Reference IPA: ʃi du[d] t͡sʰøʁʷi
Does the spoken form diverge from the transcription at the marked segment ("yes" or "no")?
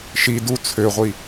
yes